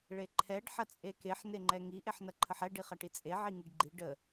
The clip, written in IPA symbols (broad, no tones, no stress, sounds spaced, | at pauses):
ɭ e ǃʰ ɛ ɖ ħ ɐ t͡sʼ e k e ħ n e ŋ͡ǃ ɛ ŋ i ʔ e ħ n ɐ ǃʰ ə ħ ɛ ɖ i χ ɐ ʈ i t͡sʼ e ʕ i ŋ i ɖ ɡ͡ǃ i ɖ ə